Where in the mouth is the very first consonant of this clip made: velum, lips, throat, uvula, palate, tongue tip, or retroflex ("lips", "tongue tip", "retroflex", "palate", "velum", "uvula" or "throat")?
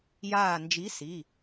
palate